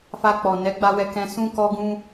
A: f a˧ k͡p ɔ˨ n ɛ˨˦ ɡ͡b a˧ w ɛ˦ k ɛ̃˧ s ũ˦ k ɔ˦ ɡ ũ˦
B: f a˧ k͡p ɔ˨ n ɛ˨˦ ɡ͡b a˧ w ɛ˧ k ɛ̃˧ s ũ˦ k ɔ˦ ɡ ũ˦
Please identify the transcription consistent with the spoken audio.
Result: B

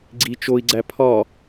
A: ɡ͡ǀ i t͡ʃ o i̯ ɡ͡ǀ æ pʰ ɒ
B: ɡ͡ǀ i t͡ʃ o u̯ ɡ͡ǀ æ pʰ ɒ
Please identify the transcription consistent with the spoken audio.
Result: A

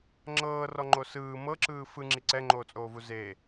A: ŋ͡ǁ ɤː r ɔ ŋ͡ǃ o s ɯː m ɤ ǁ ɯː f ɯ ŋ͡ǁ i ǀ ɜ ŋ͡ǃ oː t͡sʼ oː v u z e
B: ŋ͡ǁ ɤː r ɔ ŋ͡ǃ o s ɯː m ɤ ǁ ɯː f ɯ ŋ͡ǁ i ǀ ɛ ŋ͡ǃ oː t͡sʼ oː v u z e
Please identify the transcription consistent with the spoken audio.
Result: B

